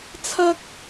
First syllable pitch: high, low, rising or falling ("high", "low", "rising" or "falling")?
high